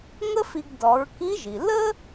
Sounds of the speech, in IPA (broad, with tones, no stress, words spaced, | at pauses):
ŋə˥fi˧ɡ dɔ˩˧ɹki˧˥ʒi˩ lə˥